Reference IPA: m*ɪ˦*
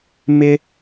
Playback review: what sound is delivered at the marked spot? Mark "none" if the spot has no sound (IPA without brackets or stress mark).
ɪ˦